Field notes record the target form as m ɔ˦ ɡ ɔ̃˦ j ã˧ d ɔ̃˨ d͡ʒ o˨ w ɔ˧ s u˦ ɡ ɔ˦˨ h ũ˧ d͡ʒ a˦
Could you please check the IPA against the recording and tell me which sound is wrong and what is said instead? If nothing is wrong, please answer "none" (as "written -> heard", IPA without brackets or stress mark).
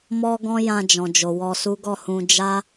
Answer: d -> d͡ʒ